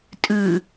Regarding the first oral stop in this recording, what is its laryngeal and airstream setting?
ejective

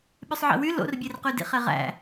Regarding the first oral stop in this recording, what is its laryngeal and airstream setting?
implosive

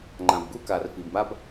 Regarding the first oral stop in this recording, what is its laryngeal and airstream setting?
click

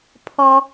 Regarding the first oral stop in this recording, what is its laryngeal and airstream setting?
aspirated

